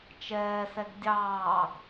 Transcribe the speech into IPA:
t͡ʃ ɛː s ɛ ɡ dʲ ɑː ɡ

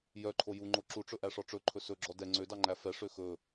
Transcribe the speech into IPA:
j œ ǃʰ o j u ŋ͡ǃ o ǁ u ʈ͡ʂ ɵ ʔ æ ʂ ɔ ʈ͡ʂ ɵ ǃʰ ɵ s ɵ ɡ͡ǁ ɔ d ɛ ŋ͡ǀ ø d ɑ ŋ͡ǃ æ f ɛ ʂ ø x ɵ

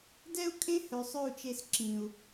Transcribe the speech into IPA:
d ɛ˦ u̯ kʼ ẽ˦ h œ˨ sˤ œ˦˨ u̯ t͡ʃ e˧ s ǁ ĩ˨ u̯

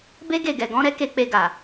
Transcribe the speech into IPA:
b e˦ ɡ e˦˨ ɡ ɛ˨ ɡ ɔ̃˨˦ ɾ ɛ˦ k e˧ k͡p e˧ ɡ a˨

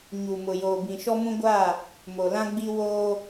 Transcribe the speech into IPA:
ɲ u˨ m ʊ˨ j oː˨ b ĩ˨ ʃ ɔ˦ m ũ˦ ɡʷ aː˦˨ | m o˨ l ã˦ ɡ͡b i˦ w oː˦

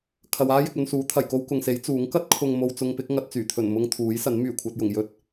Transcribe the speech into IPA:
kʰ ɐ˨ w aː˥ j ɪ˨ k̚ ɵ˧ n s uː˨˥ t̪ʰ ɐ˨˩ j k o˥ w k ʊ˨ ŋ s e˨˥ j t͡s uː˨˥ ŋ k ɐ˥ t̚ kʰ ʊ˨ ŋ m o˨ w t͡s ʊ˧ ŋ p ɪ˨˥ k̚ ŋ ɐ˨ t̚ t͡s yː˨˩ t̪ʰ ɵ˨˩ n m ʊ˧ ŋ t̪ʰ uː˨˥ j s ɐ˨˥ n m yː˨˩ kʷʰ ɐ˧ t̚ j ʊ˨˩ ŋ j ɵ˥ t̚

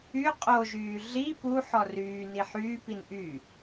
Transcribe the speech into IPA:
y qʼ o ʒ yː ɮ i p u ħ ɔ r yː n i ħ yː p i n ʔ y

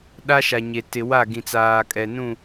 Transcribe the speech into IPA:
ɗ a˦ ʃ a˨ ɲ e˨ t ɪ˨ w a˦˨ ɡ ĩ˨ t͡s aː˨ kʼ ɛ˨ n ũ˦˨

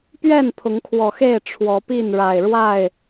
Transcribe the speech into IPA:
p ɥ ɛ˥˨ n pʰ ʊ˨˦ ŋ kʰ w ɔ˨˩ x e˥˨ ɪ̯ ʈ͡ʂʰ w ɔ˨˦ p i˥˨ n ɻ a˨˩ ɪ̯ ɻ w a˥˨ ɪ̯

